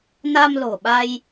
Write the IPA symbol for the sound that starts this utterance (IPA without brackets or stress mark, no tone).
n